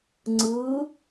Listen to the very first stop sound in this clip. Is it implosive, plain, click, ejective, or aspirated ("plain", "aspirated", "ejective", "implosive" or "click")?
click